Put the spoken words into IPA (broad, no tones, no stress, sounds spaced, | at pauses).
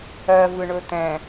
ɜ v ɯ ɳ ɵ t ɛ̃